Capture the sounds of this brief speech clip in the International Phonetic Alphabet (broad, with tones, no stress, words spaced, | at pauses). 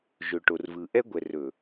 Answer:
ʒɵ˨ʈo˨rvɯ˨ ʔɛ˦ɡʷɛ˨rɵ˨